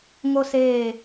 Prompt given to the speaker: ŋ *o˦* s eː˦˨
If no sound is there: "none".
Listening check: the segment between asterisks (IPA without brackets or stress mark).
o˦